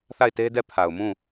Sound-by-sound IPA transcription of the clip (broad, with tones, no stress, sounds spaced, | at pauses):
θ a˦˨ ɪ̯ t e˦ d ɛ˦˨ pʰ a˨ ʊ̯ m ũ˦˨